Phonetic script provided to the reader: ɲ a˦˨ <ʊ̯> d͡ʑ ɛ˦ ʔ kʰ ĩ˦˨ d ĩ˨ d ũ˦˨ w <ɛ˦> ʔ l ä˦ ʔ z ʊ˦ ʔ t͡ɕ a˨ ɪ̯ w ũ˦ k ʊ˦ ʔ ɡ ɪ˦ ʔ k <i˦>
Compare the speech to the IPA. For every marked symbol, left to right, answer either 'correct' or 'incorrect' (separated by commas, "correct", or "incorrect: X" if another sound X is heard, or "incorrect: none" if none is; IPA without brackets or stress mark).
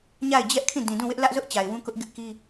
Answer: incorrect: ɪ̯, incorrect: ɪ˦, correct